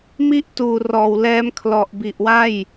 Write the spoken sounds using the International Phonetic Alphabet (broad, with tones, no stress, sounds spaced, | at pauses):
m i˥˩ ʔ t uː˨˩ r ɔː˨˩ w l ɛː˦˥ m kʰ l ɔ˨˩ ʔ b i˨˩ ʔ w a˥˩ j